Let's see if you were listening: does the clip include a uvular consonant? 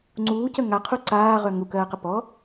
yes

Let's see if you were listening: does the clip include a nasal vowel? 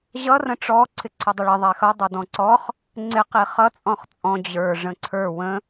yes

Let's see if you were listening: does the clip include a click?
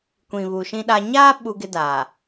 no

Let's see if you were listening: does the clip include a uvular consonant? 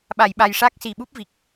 no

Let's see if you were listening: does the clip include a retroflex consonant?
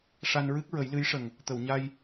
yes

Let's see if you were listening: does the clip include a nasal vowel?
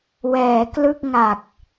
no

